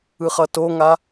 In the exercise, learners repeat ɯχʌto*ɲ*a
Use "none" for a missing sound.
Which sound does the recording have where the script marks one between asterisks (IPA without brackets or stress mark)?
ŋ